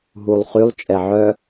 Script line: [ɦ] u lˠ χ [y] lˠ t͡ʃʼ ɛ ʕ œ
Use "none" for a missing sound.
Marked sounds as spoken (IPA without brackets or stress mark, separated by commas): ɦ, y